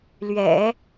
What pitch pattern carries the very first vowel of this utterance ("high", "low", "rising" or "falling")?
low